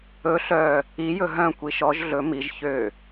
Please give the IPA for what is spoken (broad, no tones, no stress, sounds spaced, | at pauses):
ɵ ɬ œ | i j ɵ ɦ œ̃ kʷ i ʃ ɔ ʒ ɮ ɵ m i ʒ ç ø